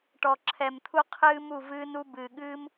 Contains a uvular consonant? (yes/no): yes